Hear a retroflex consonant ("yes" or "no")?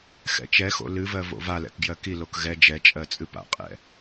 no